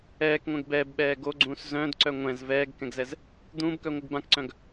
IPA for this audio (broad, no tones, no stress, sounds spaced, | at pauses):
ɛː k ŋʷ ɛ̃ ɡ b ɛː b ɓ ɛː ɡ o ɡ͡ǀ ũː s z œ̃ d ǀ œ ŋʷ ɛ̃ z v ɛː ɡ k ɛ̃ ɡ z ɛ z | d̪ ũː b k œ ŋʷ ɯ ɡ b ã k ǀ œ̃ ɡ